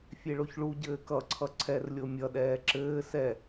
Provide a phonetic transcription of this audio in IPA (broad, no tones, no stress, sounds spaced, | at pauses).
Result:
fʲ e ɭ o ç ɭ u ɟ ɘː k ʌ ǀʰ ʌ ǀʰ ɛ r lʲ o mʲ ʌ ɗ ɛː ǁ ɘː s ɛ